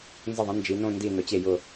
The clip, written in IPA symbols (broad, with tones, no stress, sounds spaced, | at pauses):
n z ə˧˩ ðˤ ə̃˩˧ n d͡ʒ i˩˧ n õ˥˧ n d i˧˩ n ʊ˩˧ t͡ɕ e˧˩ j ʊ˧˩